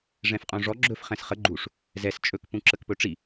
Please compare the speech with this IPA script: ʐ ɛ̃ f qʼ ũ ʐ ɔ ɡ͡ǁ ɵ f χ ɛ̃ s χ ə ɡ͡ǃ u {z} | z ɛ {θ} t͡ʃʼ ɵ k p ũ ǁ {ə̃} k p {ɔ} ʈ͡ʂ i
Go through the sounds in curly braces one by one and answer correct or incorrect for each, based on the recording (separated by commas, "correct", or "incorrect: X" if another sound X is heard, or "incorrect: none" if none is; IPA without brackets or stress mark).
incorrect: ʂ, incorrect: s, incorrect: ə, incorrect: ɵ